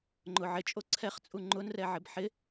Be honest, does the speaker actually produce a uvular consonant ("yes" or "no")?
yes